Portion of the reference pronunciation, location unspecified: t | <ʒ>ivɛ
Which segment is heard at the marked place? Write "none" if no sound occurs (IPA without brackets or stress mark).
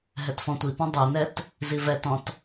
z